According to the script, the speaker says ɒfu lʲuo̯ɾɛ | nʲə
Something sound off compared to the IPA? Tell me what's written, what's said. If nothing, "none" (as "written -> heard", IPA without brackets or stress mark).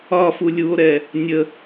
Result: none